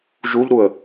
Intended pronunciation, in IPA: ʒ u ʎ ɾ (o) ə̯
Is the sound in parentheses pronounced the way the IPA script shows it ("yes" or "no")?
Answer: no